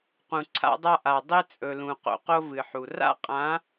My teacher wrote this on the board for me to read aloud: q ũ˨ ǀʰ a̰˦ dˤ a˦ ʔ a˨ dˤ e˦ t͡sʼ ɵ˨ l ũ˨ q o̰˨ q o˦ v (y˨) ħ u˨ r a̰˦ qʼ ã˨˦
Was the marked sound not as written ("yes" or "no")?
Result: yes